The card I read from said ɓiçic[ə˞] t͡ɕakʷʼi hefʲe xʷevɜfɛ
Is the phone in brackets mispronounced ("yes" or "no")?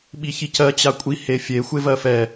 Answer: yes